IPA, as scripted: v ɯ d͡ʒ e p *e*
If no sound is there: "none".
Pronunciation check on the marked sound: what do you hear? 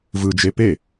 e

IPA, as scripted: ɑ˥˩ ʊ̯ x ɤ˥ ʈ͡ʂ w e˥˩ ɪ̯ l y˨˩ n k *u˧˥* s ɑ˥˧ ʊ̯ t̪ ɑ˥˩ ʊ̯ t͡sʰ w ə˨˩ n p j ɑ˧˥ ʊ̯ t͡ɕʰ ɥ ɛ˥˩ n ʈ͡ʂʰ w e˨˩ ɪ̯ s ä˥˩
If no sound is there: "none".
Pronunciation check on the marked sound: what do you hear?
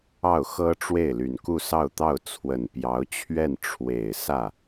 u˥˧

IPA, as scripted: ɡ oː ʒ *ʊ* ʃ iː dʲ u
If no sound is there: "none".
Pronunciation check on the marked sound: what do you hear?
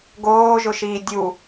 ʊ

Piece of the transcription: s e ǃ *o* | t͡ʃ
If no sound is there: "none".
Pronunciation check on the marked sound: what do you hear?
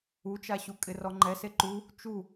u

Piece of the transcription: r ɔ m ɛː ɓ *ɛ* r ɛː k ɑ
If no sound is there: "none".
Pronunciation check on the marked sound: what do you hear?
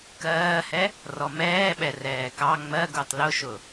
ɛ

